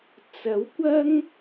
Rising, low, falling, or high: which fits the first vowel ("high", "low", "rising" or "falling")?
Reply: rising